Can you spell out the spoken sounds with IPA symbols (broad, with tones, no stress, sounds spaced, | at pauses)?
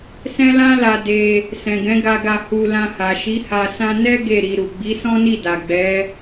s ɛ̃˦ l ã˦ l a˧ d e˧ | s ɛ̃˨ ɡ ɛ̃˨˦ ɡ a˧ ɡ a˧ h u˧ l ã˧ h a˨ ʃ i˨˦ h a˧ s ã˦ n ɛ˦ ɡ e˦˨ ɾ i˧ ɾ u˨ ɡ͡b i˨˦ s ɔ̃˦ n i˦˨ d a˨ ɡ͡b ɛ˨˦